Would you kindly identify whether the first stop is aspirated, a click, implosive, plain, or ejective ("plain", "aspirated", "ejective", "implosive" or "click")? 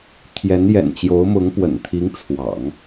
aspirated